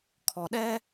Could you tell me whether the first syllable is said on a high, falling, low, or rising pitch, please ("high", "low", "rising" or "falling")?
low